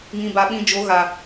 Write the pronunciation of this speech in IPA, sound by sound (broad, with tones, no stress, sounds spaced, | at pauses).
ŋ ĩ˨ b a˨ ɓ ĩ˨ d͡ʒ o˨˦ ɣ a˨